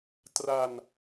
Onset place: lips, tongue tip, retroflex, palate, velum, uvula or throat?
tongue tip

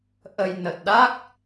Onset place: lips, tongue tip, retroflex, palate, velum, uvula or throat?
throat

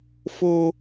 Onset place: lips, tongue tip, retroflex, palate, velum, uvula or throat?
lips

